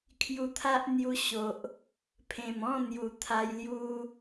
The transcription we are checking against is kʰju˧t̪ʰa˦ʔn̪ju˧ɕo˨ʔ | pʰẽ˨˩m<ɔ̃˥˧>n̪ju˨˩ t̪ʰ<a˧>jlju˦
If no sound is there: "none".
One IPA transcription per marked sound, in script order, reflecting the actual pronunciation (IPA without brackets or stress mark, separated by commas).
ɔ̃˥˧, a˧